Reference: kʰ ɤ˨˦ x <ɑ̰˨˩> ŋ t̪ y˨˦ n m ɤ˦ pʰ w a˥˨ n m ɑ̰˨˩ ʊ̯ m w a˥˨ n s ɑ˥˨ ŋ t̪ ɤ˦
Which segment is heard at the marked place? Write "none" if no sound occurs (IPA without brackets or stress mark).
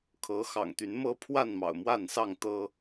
ɑ̰˨˩